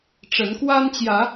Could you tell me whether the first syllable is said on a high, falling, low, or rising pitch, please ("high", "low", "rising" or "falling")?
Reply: rising